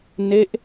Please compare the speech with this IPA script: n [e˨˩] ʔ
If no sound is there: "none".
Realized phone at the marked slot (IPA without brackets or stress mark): e˦˥